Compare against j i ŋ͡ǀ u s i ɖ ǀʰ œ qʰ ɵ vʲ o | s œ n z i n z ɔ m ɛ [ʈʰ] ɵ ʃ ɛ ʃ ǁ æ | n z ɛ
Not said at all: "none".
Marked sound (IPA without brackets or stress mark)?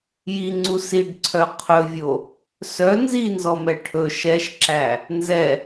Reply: ʈʰ